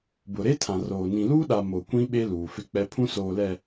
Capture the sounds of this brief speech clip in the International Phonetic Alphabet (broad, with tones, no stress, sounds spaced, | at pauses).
b ʊ˨ ɾ e˦ tʰ ã˨ r oː˨ n ĩ˨ l uː˦ ɗ a˨ m o˨ kʷ ĩ˦ ɓ e˦ l uː˨ f ɪ˦ k͡p ɛ˦ pʰ ũ˦ s oː˨ l ɛ˨